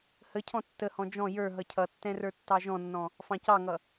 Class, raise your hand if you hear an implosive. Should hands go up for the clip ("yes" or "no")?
no